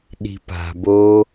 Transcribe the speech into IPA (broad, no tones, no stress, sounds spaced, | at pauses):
ɗ i̤ p a̤ b o